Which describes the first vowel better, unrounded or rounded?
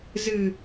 unrounded